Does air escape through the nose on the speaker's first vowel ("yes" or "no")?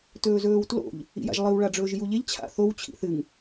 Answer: no